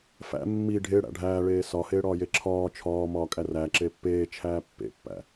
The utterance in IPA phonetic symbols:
f æ̰ mː i ɖʱ e ɽ æ̰ ɖʱ æː ɭ eː s ɒ h eː ɽ ɒː j e ǁʰ ɒː t͡ʃʰ ɒː m ɒː kʼ æ r æ ǁ e pː eː t͡ʃʰ æː pː ḛ pː æ̰

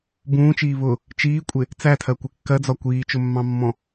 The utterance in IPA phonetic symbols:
b ũː t͡ʃ iː β ʊ | t͡ʃ iː kʷʼ ɪ | t͡s æ tʰ ɜ kʷ ɪ kː ɜ d͡z ɒ kʷ iː t͡ʃ ʊ mː ɑ̃ mː ɔ̃

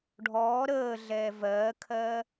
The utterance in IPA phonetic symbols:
ɖʱ ɔː ɾ əː ɮ ɛː v ɜː kʰ ɜː

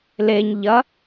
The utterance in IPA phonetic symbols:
l e ɲ ʎ ɐ

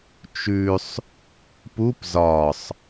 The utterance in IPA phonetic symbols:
t͡ʃ ʉ sˤ | p u p z ɒ sˤ

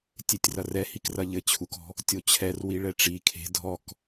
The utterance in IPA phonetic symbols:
tʲ e tʲ r ɐ r ɛ h i k r ɐ ʎ ɘ t͡ɕʰ u k ɔ̤ | tʲ o t͡ɕʰ ɛ r w i ɭ ɛ ʈ͡ʂ i kʰ e̤ dʱ ɔ k

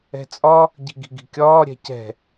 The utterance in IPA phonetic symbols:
ɛ̤ t͡sʼ ɒ | ɟ i̤ ɡ i̤ ɡ i̤ kʲ ɒː ɾʲ ɛ̤ c ɛ̤

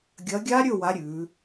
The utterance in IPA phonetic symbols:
ɡʲ ɐ˨˥ ɡʲ a˦˥ ɾʲ ɵ˥˨ w a˨˥ ɾʲ ʉː˩˧

